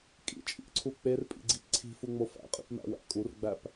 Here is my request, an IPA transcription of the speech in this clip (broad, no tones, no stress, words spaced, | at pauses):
kʼḭt͡ʃʼḭʔǀʰu k͡perpʼḭɡ͡ǀip ǀʰi̤fuŋ͡mo fæ̰qʼḭpmæ̰wæ̰ kʼurɡ͡bæp